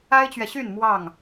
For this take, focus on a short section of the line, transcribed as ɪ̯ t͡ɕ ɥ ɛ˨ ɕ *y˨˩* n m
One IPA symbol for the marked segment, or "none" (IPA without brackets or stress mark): y˥˨